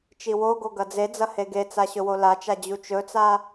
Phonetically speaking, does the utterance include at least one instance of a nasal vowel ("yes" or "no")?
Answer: no